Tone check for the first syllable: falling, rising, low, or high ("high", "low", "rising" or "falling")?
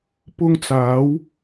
high